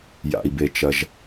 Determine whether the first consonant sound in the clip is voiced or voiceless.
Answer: voiced